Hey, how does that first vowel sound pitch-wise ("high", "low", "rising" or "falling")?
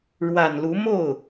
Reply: low